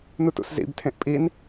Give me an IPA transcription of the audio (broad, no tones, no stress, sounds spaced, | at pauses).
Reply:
n u t ṵ s z ḭ b tʰ ẽ ʔ pʼ i n